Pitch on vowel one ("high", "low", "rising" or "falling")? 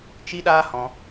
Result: high